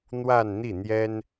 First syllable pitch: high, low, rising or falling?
falling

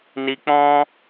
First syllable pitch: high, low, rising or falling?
high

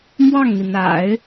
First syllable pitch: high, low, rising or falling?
falling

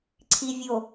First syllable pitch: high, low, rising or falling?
low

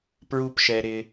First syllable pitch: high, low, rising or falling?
low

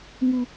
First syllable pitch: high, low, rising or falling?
high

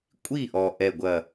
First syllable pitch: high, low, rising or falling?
falling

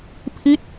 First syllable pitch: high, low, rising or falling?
falling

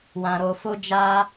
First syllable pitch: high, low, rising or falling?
low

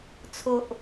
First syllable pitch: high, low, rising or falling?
high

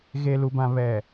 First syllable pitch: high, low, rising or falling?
low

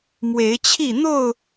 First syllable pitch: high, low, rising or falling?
rising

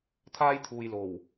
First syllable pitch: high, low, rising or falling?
high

